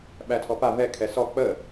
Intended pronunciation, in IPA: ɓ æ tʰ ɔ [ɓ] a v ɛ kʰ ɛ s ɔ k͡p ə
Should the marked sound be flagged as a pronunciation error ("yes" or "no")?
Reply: yes